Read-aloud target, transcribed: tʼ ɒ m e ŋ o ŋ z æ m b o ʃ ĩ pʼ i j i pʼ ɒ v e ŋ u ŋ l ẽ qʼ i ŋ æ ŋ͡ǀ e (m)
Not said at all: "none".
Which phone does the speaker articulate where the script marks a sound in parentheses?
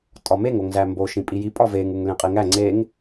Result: ŋ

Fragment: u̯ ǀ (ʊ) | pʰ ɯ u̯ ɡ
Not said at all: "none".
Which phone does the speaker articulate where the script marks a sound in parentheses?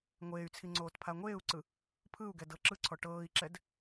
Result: ɯ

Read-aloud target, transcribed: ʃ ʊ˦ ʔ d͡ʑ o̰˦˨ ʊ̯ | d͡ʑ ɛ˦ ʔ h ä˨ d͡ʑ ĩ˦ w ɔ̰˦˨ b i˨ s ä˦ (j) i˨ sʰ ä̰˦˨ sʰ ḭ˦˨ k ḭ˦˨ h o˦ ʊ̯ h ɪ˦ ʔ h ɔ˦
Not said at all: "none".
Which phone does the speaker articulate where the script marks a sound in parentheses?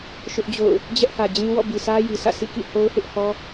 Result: j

